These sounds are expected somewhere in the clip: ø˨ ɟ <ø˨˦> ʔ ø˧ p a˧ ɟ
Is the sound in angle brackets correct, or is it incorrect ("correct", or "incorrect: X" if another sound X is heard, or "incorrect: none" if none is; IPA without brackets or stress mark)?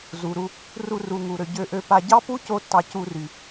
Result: incorrect: ø˧